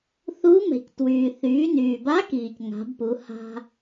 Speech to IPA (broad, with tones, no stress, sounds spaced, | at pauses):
θ u˧˥ m ɛ̤˩ c t w yː˩ θ yː˩˧ n yː˩ b a˧˥ k iː˩ c ŋ a̤˩˧ b p u˩˧ h a̤˧